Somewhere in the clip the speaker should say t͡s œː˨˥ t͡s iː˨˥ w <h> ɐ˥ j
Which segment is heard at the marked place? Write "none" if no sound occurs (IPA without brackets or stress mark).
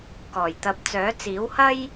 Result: h